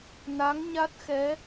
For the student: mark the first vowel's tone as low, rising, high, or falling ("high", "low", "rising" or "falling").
rising